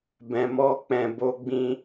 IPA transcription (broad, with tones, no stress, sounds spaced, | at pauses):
b ɛ̃˨ m ɔ˧ k͡p ɛ̃˨ b o˧ ɡ͡b ĩ˧